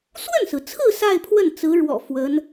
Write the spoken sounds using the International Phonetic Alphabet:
s w ə˥˩ n s ɹ̩˩ t͡sʰ ɹ̩˥˧ s a˥˧ ɪ̯ pʰ w ə˥˩ n t͡s ɹ̩˧˥ ɻ w ɔ̰˨˩ f w ə˧˥ n

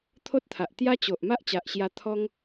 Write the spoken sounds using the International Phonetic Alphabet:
t̪ʰ o˦ t̚ t̪ʰ a˨ ʔ t̪ j a˦ t͡ɕ o˨ ʔ m a˦ ʔ t͡ɕ a˨ ʔ ɕ j a˧ t̪ʰ ɔ˦ ŋ

